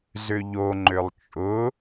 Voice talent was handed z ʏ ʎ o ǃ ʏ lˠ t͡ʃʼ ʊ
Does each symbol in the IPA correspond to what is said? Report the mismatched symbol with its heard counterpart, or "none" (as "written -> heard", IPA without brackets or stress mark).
ǃ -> ŋ͡ǃ